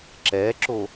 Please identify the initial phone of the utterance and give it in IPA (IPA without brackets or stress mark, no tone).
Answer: ǁ